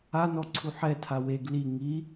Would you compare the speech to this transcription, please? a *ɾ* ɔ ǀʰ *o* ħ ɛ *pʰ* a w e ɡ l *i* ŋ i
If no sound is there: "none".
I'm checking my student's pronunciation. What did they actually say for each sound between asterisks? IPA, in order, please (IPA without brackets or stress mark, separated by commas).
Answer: n, u, tʰ, i